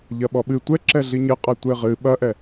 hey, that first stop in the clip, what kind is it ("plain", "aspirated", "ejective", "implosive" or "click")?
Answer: implosive